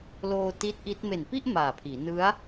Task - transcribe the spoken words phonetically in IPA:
l oː˧ t i˦˥ t̚ ʔ i˦˥ t̚ m e˨˩ n p i˥˩ ʔ m aː˨˩ pʰ iː˩˦ n ɯ˦˥ a̯

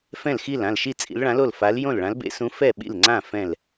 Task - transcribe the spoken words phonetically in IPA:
f ɛ̃˥˨ l x i˥˨ l ã˥˨ l ʃ i˥˨ t͡sʼ ḭ˧˥ l ɭ ã˧˥ l o˥˨ l f a˧˥ l j õ˥˨ l ɭ ã˧˥ l b ḛ˧˥ s ũ˧˥ f ɛ˥˨ ɓ ḭ˥˨ l ŋ͡ǀ ã˥˨ f ɛ̃˥˨ l

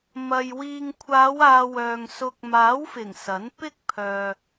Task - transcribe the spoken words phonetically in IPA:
m ɐ˨ j w iː˨ ŋ kʷʰ aː˨˧ w aː˨ w œː˨ ŋ s ʊ˧ k̚ m aː˨˥ w f ɪ˨˩ ŋ s ɐ˨˥ n p ɪ˥ k̚ pʰ œː˨

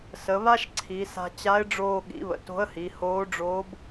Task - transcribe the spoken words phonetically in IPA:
s ə˩˧ β a˥ ʃ ǀʰ i˩˧ s a̤˧ t͡ɕ a˧˥ ɪ̯ ɖ͡ʐ oː˧ ɠ ḭ˩˧ β ə̰˩ t o̤˧˥ ə̯ h i˩˧ h oː˧˥ ɖ͡ʐ oː˧˥ b

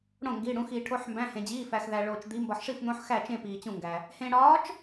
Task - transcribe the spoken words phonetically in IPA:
ɽ õ˥˨ ŋ ɡ iː˧˥˧ ɽ ũ˧˥ x iː˧ ʈʰ o˧˥˧ ħ m b æ̃˧˥˧ h ẽ˧ d͡ʑ iː˧˥˧ f æ˧ x ð æ˧ ɭ oː˧ t͡ʃ d̪ i˧˥ m b ɒ˧ ħ ʂ i˥˨ f n̪ õ˧˥ ħ x æ˥˨ t͡ʃ ẽ˥˨ p iː˧ t͡ɕ ũ˥˨ ŋ ɡ æ˧ | h ẽ˧ ɽ ɒː˧˥ t͡ʃ

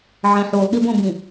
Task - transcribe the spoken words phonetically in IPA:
ʕ ɛ̃ ħ u lˠ ɠ i b õ b ĩ

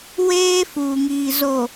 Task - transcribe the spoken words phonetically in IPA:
w eː˦ f uː˨ ŋ iː˨ z o˨

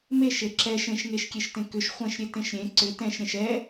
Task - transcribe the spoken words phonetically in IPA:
m e ʃ e ǁ ɛ ʃ ẽ ʃ ŋ e ʃ kʲ e ʃ t ẽ k ʏ ʃ χʷ ɛ̃ ʃ ɾʲ e t ẽ ʃ ɾʲ ẽ ǀ ʏ t ɛ̃ ʃ ɾʲ ɛ̃ ʃ ɛ

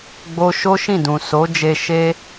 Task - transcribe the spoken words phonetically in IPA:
ɡ͡b o˧ ʃ o˦ ʃ ĩ˦˨ d ũ˨ s o˨˦ d͡ʒ e˧ ʃ e˧

